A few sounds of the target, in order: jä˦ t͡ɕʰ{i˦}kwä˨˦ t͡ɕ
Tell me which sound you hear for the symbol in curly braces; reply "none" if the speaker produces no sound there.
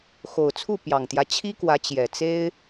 i˦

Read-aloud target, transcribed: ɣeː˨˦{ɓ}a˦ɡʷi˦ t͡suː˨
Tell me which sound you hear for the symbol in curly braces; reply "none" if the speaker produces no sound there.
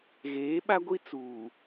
ɓ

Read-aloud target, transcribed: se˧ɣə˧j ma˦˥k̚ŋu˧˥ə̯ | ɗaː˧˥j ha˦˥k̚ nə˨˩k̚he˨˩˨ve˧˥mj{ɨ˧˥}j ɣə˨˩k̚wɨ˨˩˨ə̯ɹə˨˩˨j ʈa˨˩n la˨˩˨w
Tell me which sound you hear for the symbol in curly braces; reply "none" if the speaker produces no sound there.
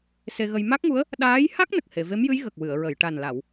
ɨ˧˥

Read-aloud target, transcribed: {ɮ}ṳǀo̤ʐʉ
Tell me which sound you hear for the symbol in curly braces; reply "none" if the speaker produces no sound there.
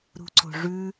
ɾ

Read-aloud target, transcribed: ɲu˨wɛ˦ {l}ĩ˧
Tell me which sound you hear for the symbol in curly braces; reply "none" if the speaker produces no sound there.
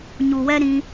ɾ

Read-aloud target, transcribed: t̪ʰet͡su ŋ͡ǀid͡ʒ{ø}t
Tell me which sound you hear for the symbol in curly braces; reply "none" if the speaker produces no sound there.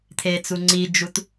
u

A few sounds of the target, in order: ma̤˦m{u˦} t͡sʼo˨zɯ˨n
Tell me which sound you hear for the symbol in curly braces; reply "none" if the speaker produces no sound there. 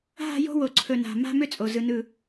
ʏ˦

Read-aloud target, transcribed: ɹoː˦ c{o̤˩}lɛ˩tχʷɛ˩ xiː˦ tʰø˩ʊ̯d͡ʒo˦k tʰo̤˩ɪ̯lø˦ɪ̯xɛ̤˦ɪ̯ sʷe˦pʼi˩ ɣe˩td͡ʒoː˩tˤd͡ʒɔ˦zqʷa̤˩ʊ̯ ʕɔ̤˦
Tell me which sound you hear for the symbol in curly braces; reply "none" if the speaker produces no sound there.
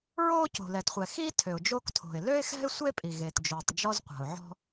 o̤˩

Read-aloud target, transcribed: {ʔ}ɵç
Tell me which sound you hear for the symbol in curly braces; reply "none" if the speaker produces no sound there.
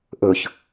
ʔ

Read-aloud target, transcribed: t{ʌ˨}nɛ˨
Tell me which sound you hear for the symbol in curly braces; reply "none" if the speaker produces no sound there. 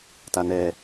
a˨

